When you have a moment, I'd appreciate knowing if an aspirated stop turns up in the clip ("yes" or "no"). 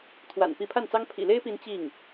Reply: yes